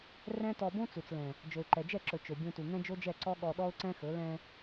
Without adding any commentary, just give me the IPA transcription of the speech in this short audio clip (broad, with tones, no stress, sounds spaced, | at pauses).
r ɛ̃˦ t ɔ˧ b õ˦ t͡s u˨ t͡s l ɛ̃˨ | d͡ʒ ɵ˨ ɪ̯ ǃ ɛ˨ d͡ʒ ɛ˦˨ ǁ ɵ˨ t͡ʃ ɵ˨ bʲ õ˧ t u˨ ŋ ɛ̃˦ d͡ʒ o˦ d͡ʒ ɛ˦˨ ǀ ɔ˦ ɠ ɔ˧ ɗ ɔ˦ ʊ̯ ǀ ɛ̃˦ x ɵ˨˦ l ɛ̃˧